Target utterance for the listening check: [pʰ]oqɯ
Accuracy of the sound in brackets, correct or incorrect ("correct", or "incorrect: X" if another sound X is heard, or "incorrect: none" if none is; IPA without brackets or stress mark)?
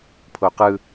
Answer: correct